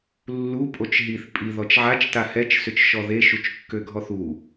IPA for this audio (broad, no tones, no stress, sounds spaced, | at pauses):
lː u pʼ o t͡ʃ ɦ i θ pʼ i ð ɔ t͡ʃ ʕ a t͡ʃ t a h ɛ t͡ʃ s ʏ t͡ʃ ʃ ɔ ð e ʃ u t͡ʃ kː ø ɡʱ ɔ θ u